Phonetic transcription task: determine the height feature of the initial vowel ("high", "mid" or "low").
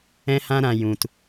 mid